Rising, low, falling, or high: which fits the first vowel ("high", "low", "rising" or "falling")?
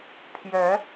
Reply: rising